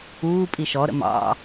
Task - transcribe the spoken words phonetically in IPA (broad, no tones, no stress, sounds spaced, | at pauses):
uː pʼ i ʃ ɔ ɾ ə̰ m ɑ̰